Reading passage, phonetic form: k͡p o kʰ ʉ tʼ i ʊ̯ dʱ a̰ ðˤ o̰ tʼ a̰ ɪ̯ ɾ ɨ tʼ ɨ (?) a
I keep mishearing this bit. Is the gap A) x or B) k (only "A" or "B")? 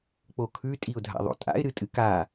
B